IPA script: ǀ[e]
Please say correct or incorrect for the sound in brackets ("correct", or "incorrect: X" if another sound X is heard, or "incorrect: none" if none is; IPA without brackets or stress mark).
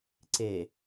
correct